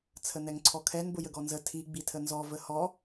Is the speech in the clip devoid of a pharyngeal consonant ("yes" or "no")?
yes